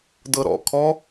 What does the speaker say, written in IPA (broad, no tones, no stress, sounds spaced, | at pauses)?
d ɤ ɾ ɔ̰ kʰ ɔ